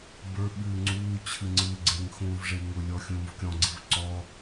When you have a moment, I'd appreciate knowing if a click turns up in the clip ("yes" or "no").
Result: yes